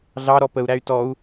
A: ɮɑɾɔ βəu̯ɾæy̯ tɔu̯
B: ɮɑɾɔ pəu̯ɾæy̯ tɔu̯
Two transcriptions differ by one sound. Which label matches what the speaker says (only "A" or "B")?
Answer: B